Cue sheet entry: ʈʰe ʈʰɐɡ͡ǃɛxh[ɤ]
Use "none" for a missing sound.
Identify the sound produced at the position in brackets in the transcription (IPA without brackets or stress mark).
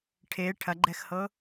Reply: ɤ